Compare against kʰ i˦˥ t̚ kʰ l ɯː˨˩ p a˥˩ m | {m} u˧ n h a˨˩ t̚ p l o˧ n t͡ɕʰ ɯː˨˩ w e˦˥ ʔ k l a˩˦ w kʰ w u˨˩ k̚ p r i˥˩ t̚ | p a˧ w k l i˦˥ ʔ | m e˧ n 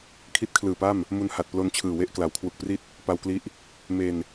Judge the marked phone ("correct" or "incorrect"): correct